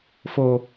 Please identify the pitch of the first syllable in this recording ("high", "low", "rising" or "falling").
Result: low